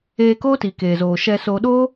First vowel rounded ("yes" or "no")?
no